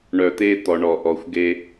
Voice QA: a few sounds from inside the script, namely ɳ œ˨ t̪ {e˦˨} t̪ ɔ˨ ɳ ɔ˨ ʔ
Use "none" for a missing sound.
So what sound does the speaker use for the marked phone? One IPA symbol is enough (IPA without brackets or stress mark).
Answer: e˦